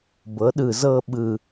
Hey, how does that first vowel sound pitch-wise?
rising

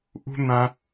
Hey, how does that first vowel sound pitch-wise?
high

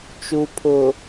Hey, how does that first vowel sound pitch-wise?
low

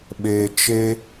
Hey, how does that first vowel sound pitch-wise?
low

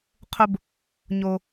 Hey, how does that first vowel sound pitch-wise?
high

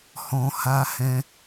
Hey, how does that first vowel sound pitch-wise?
low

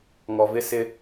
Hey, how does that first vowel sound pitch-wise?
low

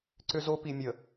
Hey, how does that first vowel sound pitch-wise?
high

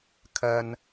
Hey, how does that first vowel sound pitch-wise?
low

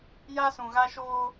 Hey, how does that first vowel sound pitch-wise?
high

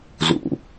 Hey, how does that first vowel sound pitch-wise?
low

